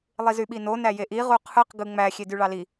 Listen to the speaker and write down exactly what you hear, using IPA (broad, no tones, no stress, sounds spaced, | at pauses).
lˠ i z y ɓ i n o n æ j e ʔ i ʁ u qʰ ɯ q ɡ ɯ ŋ͡m æ xʲ e d y ɭ ɑ l i